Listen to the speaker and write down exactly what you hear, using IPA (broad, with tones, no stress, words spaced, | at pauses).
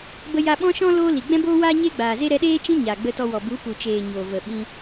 bə˧jaː˧ɓɔ̃˦ʃɔ̃˦ loː˦li˨ ɡ͡bɛ̃˦boː˦waː˦ ɲe˦ɡ͡baː˨ze˦ ɾɛ˧ɗeː˦ t͡ʃĩ˦ ɲaː˨ɡ͡bə˧tɔ˧ wɔ˨ bu˨˦ pu˨t͡ʃeː˨ ɲoː˨və˨ɓĩ˧